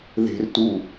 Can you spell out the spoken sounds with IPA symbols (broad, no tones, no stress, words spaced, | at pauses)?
ðe̤rtu